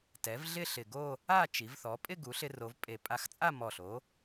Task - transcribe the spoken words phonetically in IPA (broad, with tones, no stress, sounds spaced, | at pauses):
t ɛ˩˥ v ɮ ɪ˥˧ ɬ ɪ˨˩ ɡ o˥˧ | a˥˧ t͡ʃ i˩˧ v θ ɔ˩˧ pʼ ɪ˥˧ ɡ u˩˧ ɬ ɪ˧ r o˩˧ v pʼ e˨˩ pʼ a˧ x t͡sʼ a˥˧ m ɔ˨˩ ɬ o˩˥